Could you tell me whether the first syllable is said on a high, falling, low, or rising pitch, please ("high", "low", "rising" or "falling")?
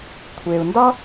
low